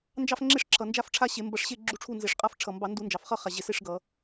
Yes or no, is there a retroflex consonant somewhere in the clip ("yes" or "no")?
yes